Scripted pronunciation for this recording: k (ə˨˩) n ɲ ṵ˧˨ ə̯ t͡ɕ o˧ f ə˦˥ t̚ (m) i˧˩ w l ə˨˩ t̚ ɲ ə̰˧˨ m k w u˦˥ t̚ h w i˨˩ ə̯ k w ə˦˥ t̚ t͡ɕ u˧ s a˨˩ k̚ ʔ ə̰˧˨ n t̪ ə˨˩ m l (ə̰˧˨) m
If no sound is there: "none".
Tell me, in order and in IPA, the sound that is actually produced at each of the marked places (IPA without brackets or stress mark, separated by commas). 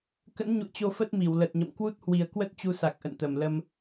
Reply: ə̰˧˥, m, ə˧